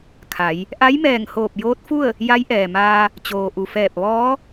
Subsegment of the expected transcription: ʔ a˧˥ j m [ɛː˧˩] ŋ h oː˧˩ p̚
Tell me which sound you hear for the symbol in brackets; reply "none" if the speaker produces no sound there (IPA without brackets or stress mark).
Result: ɛː˧˩